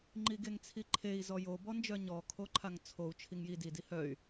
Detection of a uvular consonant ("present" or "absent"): absent